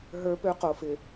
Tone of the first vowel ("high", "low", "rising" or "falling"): high